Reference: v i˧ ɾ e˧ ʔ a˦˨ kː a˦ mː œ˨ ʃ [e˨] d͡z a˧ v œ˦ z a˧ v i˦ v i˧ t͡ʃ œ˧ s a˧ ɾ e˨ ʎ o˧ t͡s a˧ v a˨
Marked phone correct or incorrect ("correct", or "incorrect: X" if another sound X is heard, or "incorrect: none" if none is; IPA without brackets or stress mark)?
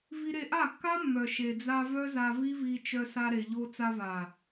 correct